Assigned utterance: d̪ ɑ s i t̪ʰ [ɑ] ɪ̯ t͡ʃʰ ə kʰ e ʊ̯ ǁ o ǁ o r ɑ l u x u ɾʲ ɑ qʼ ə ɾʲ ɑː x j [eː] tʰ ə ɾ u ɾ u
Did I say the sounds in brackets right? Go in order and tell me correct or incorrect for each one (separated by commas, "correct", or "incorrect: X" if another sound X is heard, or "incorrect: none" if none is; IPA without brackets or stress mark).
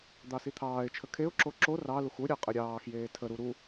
incorrect: ɑː, correct